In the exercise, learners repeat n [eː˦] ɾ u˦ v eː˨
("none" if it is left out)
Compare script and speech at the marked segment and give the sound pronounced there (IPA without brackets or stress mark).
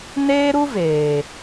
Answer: eː˦